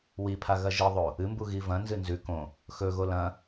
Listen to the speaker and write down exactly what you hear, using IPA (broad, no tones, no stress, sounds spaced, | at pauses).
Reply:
w i pʰ a ɣ ɐ ʒ i ðˤ o | ɨ m b u ɣ i v ɐ̃ n z ɨ n z ʉ k õ | x ɵ ɣ o l ɐ̃